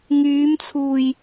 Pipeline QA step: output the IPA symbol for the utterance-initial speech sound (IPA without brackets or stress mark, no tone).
ŋ